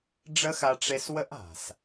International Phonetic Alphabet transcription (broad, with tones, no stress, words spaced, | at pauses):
ɖ͡ʐə˦xa˧ʈ͡ʂe˧swə˦ʔ a̤˨s